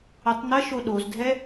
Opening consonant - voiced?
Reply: no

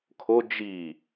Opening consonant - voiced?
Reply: no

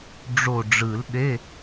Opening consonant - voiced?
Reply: yes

